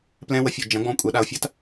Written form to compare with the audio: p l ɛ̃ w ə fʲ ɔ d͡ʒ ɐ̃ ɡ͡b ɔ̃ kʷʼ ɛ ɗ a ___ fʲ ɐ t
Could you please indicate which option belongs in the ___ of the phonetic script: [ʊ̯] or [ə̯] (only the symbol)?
ʊ̯